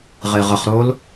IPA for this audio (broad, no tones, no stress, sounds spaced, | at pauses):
ʁ e ʁ ə χ ɾ o l